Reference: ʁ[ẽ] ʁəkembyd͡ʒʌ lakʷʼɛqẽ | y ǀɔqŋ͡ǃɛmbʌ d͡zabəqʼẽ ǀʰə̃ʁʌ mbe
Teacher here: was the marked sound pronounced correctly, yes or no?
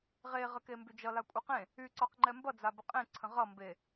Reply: no